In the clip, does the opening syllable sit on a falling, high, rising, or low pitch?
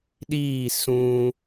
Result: falling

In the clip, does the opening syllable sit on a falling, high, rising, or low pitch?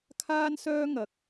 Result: high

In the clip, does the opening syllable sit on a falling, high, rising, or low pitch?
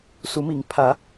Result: rising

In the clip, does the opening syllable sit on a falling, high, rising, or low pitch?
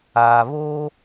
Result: low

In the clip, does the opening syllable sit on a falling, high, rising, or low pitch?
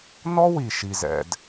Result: high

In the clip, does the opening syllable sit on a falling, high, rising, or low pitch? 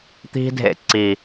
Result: high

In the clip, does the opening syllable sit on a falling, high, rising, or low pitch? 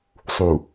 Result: low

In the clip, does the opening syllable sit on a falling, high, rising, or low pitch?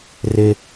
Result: high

